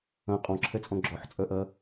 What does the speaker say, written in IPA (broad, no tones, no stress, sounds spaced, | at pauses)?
ɐ̃ qʼ ɔ̃ ǁʰ ɛ t͡sʼ ɔ̃ ɡ͡ǁ ɔ ħ t͡sʼ œ ʔ ɐ